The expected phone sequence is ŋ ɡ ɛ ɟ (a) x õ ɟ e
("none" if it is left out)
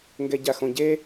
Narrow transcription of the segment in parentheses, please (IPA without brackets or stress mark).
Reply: a